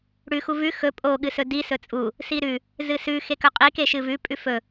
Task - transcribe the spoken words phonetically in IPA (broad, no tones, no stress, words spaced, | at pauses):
ɽʉ xuvʉ xɵ pʼo ɠɨsɵdi sɵt͡sʼu | siɾʉ | zɨsʉ xekɵqʼi keʃɨvʉ pʼʉfɵ